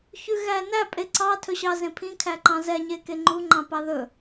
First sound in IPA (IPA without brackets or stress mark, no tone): ç